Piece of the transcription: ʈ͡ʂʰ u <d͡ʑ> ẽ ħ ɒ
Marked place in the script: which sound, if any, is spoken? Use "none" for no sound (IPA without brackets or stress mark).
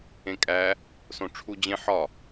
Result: d͡ʑ